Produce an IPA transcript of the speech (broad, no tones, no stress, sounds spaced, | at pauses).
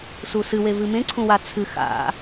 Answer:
s u s ɨ w e v ɨ m ẽ ǀʰ ũ w a t͡sʰ ɨ x a̰